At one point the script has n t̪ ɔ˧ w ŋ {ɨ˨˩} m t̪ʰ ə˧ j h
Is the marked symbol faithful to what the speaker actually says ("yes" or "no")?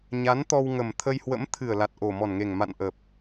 no